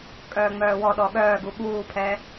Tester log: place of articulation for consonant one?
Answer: velar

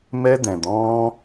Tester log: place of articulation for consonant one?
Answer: labial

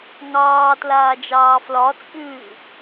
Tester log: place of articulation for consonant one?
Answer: velar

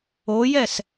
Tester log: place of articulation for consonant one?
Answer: palatal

